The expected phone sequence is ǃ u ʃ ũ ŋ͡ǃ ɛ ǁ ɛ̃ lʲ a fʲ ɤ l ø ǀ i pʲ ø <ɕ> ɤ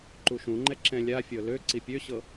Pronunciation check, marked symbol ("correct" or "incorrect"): correct